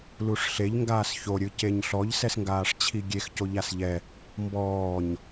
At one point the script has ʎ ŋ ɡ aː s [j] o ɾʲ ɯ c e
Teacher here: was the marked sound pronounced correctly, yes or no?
no